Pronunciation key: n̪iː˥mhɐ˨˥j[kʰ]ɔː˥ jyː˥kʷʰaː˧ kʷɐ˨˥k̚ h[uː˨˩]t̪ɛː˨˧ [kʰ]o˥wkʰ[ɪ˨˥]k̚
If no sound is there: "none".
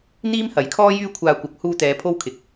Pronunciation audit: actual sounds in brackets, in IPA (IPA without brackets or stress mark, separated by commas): kʰ, uː˧, pʰ, ɪ˨˥